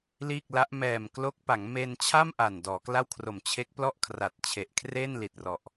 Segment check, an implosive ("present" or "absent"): absent